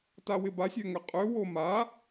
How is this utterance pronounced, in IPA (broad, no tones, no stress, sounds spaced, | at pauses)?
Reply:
t a w ɪ b a sʲ ø ŋ ʏ qʼ ø w o m a